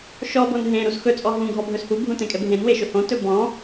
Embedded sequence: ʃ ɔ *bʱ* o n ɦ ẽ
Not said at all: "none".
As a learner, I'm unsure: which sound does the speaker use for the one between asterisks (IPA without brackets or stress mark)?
b